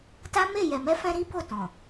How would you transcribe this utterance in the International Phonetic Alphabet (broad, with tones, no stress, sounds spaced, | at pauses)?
t a˦ m e˦˨ j ɛ˨ m ɛ˧ f ɛ̃˧ ɾ i˦ b o˦˨ t ɔ̃˨